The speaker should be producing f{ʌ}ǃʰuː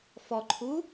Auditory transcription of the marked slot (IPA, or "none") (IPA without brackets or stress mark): ɔ